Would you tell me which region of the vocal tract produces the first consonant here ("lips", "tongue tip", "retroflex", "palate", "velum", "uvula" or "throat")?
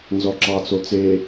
tongue tip